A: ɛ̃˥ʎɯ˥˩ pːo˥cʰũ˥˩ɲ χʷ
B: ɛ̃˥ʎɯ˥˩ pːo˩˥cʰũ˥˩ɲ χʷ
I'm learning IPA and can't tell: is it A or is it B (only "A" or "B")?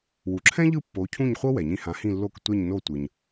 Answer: B